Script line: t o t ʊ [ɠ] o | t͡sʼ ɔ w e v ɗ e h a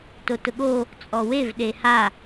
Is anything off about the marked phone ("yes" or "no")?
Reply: no